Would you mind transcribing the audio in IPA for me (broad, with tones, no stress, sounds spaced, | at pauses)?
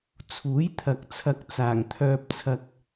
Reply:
t͡sʰ uː˨˥ j t̪ʰ ɐ˨ k̚ t͡sʰ ɐ˨ k̚ t͡s aː˨˩ ŋ t̪ʰ œː˧ p̚ t͡sʰ ɐ˧ k̚